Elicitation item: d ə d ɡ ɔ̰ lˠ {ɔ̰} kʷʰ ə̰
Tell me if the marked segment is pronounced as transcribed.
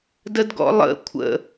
no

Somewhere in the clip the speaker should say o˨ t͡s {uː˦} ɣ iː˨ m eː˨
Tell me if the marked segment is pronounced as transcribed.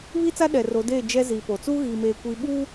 yes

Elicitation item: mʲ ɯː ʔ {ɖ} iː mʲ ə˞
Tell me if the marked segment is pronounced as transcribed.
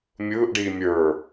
yes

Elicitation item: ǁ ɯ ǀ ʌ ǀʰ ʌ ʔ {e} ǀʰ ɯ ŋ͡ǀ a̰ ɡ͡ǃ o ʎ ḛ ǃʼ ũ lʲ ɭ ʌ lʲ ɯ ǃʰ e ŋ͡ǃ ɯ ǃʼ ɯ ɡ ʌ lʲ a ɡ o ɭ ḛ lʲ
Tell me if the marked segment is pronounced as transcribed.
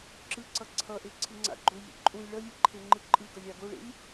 yes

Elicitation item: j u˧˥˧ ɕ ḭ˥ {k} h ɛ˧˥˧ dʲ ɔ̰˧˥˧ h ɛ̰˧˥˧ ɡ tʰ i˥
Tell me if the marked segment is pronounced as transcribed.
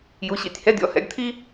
no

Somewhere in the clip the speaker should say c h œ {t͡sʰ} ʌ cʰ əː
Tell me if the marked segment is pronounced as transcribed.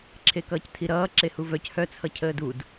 yes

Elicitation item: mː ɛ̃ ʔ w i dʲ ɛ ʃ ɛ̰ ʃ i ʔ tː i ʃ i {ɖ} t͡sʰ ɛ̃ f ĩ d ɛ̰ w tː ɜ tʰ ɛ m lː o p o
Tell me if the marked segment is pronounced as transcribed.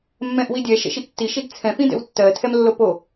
no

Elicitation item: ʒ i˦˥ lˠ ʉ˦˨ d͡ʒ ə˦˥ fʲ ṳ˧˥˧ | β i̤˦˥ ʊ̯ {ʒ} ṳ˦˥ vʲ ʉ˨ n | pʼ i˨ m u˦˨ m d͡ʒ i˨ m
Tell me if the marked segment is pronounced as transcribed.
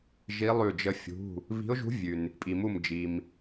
yes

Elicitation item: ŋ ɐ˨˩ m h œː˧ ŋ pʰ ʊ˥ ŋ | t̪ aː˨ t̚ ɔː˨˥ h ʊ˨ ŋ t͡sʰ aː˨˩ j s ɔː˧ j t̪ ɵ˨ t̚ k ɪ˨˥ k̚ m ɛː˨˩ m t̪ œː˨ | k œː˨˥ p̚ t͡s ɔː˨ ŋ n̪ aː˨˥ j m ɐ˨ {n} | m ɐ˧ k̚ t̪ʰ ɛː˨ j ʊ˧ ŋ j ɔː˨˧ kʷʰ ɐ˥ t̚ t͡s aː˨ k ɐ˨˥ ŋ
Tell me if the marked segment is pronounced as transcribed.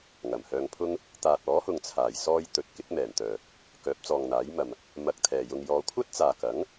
no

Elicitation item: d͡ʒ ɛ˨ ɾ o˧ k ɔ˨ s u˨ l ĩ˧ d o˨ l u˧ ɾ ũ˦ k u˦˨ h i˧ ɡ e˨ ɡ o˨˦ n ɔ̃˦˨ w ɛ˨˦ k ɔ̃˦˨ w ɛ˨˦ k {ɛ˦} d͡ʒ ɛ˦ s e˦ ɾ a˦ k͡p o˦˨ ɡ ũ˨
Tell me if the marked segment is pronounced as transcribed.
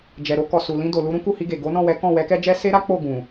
yes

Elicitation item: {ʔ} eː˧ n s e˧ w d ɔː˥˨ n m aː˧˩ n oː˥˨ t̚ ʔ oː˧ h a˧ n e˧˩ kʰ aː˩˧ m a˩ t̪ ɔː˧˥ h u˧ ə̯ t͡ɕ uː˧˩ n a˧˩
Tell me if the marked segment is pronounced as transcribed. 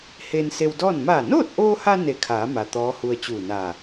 no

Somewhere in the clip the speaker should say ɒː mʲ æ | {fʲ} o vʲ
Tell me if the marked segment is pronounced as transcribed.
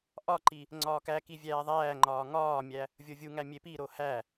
no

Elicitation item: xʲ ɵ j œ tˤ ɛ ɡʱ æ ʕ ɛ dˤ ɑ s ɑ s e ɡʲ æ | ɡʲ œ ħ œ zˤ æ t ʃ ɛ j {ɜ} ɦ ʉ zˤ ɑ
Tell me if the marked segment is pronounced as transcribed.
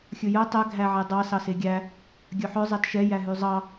no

